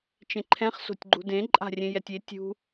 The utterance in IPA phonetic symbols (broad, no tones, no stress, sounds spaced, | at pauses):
t͡ʃ ẽ ǃʰ ɛ̃ χ s o̤ tʲ ɡ͡ǃ ṳ d ẽ ǃʼ a̤ rʲ ẽ j ɛ tʲ e tʲ ṳ